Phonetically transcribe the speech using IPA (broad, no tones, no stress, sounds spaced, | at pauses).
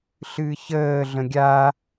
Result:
ɬ ɨː ç əː ɮ ə̃ ɡʲ a